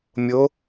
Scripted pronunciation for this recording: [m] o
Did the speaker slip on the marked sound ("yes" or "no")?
yes